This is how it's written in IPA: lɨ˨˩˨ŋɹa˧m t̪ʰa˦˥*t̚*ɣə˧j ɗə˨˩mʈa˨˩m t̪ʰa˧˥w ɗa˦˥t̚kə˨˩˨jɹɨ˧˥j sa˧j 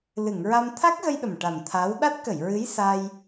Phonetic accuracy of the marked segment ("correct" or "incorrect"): incorrect